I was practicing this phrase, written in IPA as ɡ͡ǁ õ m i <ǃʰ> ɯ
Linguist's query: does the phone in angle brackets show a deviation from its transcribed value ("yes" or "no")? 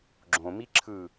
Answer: yes